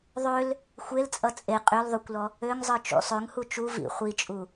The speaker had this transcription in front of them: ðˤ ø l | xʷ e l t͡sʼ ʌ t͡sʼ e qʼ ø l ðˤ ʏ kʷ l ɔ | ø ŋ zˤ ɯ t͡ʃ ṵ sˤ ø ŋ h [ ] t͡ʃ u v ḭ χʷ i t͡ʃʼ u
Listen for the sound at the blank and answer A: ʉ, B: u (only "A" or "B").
B